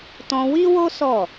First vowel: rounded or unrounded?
rounded